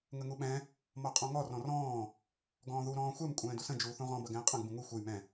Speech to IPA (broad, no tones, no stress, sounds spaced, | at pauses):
ŋ ə ŋ u ɓ ɛ̃ | m ɔ qʼ ɔ̃ ŋ ɔ r ɔ̃ r ɔ̃ː | ɡ ɔ̃ː ð u ɾ ɔ̃ː xʷ ɛ m kʷʼ ɛ̃ː d u s ə̃ d͡ʒ uː θ ũ ʁ ɔ̃ b ɐ ɡ ɛ̃ː qʼ ɐ̃ ɡ b ũ ŋ u xʷ ɛ j m ɛ̃